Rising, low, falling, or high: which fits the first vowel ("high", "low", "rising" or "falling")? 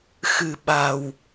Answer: low